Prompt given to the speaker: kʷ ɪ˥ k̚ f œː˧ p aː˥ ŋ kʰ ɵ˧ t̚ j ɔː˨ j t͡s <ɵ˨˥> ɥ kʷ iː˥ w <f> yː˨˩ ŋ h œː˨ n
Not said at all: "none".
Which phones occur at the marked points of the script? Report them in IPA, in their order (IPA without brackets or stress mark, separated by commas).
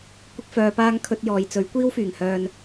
ɵ˨˥, f